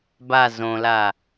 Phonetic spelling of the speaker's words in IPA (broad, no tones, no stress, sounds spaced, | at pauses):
b a z õ l a